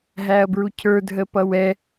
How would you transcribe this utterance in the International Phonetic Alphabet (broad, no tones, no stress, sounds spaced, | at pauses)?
ɦ æ ɐ̯ b ɹ u cʰ ə˞ dʱ ə p ʌ w ɛ